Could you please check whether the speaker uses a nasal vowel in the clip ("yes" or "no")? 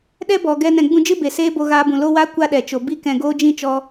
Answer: yes